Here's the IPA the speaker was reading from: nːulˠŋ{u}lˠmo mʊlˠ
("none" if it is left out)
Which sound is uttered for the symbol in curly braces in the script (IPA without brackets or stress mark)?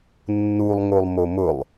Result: o